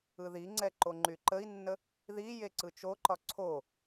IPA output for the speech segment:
ɯ ð i ŋ͡ǀ ɛ ǃ o ŋ͡ǃ y ǃ ə i̯ nː ə | ð i j e ǀ ɯ t͡ʃ o ǃ ɒ ǀʰ o

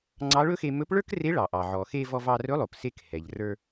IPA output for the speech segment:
ŋ͡ǀ ɑ˧˥ ɭ ɵ˥ x e˧ m ɵ˧˥ p ɭ ə˞˥ k r e˧˥ ɭ ɑ˩ ʔ ɑ˩ ʕ ɔ˩ x e˧ v ɔ˧ v ɑ˧ r ɵ˧˥ lˠ o˩ p s e˧ k h ɛ˩ ʎ r ə˞˧

